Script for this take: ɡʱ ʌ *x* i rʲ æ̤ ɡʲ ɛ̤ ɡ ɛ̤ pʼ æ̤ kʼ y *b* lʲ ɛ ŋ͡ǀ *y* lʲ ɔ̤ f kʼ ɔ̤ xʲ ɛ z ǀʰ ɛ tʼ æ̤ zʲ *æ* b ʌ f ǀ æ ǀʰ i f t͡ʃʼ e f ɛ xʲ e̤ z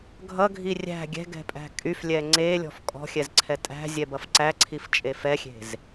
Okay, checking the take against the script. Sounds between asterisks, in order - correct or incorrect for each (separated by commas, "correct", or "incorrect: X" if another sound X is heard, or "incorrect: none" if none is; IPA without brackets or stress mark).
incorrect: ɡʱ, incorrect: f, incorrect: e, incorrect: ɛ